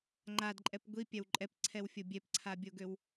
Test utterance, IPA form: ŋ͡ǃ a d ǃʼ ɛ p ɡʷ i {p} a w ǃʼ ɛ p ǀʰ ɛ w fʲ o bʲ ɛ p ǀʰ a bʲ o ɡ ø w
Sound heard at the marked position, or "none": pʲ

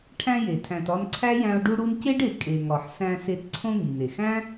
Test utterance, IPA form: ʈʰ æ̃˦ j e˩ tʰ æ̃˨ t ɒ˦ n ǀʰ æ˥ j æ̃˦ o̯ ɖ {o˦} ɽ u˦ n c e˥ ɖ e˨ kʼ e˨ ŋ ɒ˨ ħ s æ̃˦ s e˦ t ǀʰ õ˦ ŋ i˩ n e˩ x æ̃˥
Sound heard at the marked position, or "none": u˦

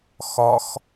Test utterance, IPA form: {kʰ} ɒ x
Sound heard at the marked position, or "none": x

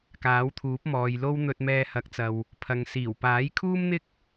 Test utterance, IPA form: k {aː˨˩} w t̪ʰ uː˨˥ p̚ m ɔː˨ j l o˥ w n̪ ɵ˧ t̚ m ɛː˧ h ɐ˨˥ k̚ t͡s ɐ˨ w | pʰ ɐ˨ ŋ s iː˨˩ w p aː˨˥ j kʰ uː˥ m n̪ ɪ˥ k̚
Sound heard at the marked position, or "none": aː˨˥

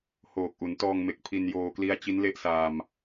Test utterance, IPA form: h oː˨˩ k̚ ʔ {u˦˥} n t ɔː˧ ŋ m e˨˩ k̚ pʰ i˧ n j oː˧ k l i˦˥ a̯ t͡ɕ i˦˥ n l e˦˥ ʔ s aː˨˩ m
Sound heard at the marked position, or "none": u˩˦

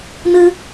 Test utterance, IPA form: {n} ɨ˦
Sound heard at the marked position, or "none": n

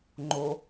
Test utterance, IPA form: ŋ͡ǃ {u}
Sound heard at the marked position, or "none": o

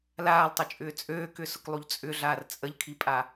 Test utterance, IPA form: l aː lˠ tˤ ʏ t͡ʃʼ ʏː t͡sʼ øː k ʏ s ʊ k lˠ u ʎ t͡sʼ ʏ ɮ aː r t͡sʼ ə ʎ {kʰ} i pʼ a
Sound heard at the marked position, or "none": kʰ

